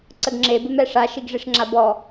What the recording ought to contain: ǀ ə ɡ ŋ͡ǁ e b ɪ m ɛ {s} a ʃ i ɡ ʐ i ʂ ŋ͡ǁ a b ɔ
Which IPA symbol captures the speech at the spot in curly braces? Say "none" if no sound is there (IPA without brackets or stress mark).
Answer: ʂ